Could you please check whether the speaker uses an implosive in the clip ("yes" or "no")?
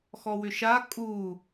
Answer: no